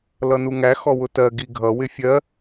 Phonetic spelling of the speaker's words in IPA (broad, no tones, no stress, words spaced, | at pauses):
lʌnuŋæ xɔwʊtɜ ɡiɡʱʌ wɪfʲɜ